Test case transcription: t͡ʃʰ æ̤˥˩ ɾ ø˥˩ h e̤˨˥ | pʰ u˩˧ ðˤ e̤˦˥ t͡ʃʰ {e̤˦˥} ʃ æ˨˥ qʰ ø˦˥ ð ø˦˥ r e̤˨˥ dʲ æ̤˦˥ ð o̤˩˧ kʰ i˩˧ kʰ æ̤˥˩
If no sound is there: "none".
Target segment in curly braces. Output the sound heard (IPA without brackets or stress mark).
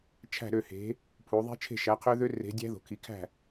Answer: e̤˥˩